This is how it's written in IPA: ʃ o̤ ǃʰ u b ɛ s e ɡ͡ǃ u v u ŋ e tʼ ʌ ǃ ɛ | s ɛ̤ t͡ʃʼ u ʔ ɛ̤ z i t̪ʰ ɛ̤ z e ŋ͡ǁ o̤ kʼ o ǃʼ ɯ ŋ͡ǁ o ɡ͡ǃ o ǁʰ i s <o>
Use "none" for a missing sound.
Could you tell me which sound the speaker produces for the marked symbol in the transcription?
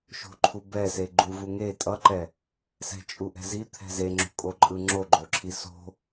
o̤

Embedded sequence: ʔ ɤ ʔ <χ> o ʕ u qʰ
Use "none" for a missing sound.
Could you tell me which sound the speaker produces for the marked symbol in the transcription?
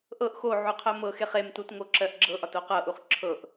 x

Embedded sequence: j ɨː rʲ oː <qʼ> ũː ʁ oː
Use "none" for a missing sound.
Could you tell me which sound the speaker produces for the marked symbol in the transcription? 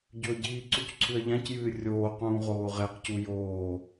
q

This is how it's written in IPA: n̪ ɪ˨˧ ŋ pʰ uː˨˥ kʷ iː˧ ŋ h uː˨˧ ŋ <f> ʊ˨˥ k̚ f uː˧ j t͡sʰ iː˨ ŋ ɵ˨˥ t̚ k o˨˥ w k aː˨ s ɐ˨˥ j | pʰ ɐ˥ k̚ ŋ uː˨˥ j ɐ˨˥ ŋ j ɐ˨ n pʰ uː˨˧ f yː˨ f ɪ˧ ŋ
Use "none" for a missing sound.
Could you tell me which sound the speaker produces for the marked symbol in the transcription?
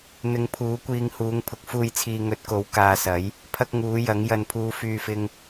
pʰ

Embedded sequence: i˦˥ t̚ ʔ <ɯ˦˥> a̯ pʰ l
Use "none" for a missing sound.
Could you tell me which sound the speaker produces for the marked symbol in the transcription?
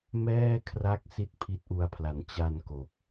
u˦˥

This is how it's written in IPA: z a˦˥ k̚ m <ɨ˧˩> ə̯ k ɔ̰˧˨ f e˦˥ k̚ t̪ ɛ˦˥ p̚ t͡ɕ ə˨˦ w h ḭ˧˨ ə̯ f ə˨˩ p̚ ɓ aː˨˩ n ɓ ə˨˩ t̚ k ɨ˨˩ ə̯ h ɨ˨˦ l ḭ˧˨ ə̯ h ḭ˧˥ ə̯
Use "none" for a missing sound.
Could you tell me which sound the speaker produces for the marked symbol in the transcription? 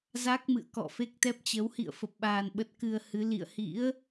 ɨ̰˧˨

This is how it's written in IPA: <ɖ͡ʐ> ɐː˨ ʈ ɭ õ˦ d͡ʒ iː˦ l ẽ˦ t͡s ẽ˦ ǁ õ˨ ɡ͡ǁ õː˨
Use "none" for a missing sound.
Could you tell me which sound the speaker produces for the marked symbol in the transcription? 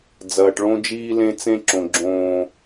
d͡z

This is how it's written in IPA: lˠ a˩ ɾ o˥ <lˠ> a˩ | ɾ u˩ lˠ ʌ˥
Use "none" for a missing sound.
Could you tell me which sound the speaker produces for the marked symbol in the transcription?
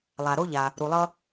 ʎ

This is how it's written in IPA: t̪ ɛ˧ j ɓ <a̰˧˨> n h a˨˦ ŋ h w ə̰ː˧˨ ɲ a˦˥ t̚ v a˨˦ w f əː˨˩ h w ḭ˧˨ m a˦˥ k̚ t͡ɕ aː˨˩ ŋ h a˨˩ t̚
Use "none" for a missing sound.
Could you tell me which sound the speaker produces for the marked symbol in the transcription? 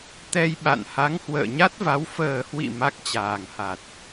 a̰˧˨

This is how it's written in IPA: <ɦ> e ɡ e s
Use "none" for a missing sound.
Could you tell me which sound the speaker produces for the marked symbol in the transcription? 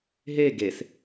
ɦ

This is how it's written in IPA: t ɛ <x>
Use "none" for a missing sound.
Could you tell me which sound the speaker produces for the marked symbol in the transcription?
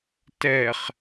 χ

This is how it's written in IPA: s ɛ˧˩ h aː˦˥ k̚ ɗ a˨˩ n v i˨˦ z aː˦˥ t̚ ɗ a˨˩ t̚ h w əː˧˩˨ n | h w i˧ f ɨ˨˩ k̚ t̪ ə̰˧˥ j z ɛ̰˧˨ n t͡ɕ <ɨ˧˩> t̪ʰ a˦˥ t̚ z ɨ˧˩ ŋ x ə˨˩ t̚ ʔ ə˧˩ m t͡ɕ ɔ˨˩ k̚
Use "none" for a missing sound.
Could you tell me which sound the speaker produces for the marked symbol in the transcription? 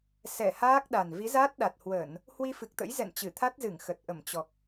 ɨ˧˩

